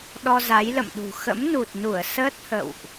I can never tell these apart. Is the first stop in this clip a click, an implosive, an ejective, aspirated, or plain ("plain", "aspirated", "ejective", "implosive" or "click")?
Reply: implosive